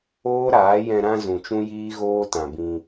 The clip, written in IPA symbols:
oː˦ ɾ aː˨˦ j ɛ̃˧ ɾ ã˧ z ũ˨ t͡ʃ ũ˦ j iː˦ ɣ oː˦ t ã˨ b ĩ˧

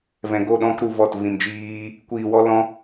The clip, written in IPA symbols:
v ɛ̃˨ ɡ o˦˨ ɗ ɔ̃˦ k ɾ u˧ v ɔ˦˨ t v ĩ˧ m d͡ʒ iː˦ | kʷ iː˧ w ɔ˦ l ɔ̃˦

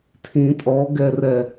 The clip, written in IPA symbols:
tʰ ĩ tʼ ɔ ɡ ɛ r ɛ

